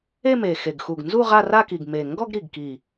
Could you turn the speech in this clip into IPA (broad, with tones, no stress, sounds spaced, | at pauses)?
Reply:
e˥˧ m e˨˩ x e˨˩ ɡ x u˨˩ ɡ n z u˥˧ ʁ a˥˧ r a˥˧ k i˨˩ ɡ m e˨˩ ŋ ɡ ɔ˥˧ ɡ ɾ i˨˩ ɡ k i˨˩